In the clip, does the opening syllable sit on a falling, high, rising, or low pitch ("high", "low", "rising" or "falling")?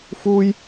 high